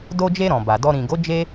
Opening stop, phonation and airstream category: plain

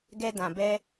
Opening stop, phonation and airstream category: plain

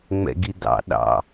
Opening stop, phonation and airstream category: plain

